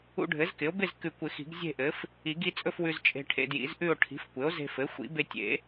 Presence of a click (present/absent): absent